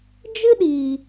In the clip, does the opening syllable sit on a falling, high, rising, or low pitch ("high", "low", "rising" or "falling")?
high